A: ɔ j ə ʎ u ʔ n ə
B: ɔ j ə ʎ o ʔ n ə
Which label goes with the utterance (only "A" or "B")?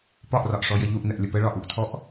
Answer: A